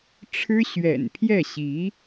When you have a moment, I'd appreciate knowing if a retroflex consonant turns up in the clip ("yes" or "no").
yes